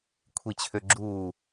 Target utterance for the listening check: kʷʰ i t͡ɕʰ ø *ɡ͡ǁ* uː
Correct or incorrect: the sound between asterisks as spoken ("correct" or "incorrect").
correct